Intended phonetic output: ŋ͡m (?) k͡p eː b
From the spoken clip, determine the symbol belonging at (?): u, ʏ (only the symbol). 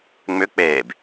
ʏ